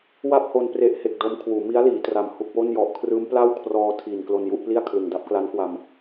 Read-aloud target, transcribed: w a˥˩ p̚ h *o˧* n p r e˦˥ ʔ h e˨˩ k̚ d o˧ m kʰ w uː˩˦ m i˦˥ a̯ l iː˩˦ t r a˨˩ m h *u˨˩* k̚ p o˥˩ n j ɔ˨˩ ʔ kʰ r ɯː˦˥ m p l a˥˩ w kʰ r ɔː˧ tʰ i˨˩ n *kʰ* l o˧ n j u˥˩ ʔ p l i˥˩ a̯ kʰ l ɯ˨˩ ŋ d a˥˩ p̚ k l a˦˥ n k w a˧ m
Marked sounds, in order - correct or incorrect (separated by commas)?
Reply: correct, correct, incorrect